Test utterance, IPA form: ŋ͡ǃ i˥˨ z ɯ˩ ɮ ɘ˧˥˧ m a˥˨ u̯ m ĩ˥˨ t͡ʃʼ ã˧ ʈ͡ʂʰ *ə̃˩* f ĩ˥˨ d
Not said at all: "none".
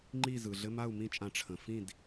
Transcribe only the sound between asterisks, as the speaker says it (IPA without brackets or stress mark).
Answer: ə̃˩